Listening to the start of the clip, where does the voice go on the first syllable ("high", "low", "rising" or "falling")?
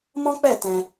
high